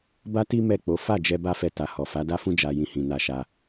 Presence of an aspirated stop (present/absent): absent